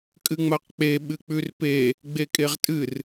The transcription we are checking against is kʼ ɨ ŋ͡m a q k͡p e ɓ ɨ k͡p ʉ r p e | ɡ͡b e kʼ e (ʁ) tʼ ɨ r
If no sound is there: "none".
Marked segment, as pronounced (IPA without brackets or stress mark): ʁ